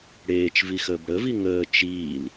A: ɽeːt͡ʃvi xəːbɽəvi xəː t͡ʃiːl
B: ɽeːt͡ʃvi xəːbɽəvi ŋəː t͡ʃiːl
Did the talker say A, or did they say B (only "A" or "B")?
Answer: B